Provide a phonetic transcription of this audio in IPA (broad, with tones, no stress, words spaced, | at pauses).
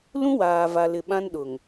lũ˦waː˨va˨lɪ˨ ɓã˦nɗʊ˨ŋ